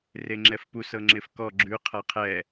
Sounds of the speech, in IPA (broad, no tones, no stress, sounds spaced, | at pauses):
r e ŋ͡ǁ ɛ f p u s ɤ ŋ͡ǁ ɪ f k ɔ ɡ͡ǁ ʉ qʰ a qʰ ɛ